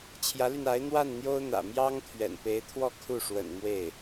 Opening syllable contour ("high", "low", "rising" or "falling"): rising